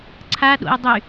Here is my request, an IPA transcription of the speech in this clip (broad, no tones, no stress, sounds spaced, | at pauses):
ǀʰ a ɗ o̰ ɪ̯ dˤ y